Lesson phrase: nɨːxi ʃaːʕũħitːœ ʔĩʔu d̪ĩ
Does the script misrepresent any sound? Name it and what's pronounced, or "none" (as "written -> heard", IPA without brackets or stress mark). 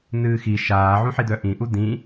tː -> d̪